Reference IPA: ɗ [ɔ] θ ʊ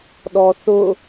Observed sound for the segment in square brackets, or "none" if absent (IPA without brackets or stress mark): ɔ